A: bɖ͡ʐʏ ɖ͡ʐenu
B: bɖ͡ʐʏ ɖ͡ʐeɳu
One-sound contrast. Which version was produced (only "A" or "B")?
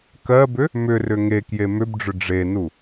A